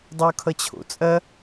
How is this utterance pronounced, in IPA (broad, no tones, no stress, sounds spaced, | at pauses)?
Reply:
dˤ ɐ o̯ kʰ ʌ t͡ɕʰ o̰ t͡sʼ ɐ